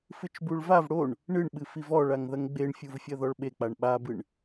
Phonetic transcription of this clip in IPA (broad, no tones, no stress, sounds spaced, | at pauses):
f ɨ t͡ʃ b u ɭ v a v ɽ o ɳ | ɳ ɨ ɳ ɓ ɨ f i v ɔ ɭ a ŋ ð ɐ ŋ ɡ͡b e ɳ fʲ u v fʲ ɐ ð ɔ ɭ ɓ e k͡p a ɳ ɓ a b ɨ ɳ